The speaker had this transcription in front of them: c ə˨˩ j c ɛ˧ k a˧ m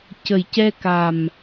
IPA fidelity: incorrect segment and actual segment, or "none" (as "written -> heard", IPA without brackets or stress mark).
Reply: a˧ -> a˨˩